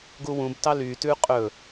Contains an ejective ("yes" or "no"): yes